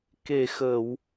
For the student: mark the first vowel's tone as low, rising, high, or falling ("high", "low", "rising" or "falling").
low